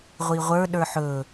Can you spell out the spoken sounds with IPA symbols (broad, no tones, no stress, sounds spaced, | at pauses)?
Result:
ʁʷ i ʁʷ ə˞ ɗ ə˞ ħ ɵ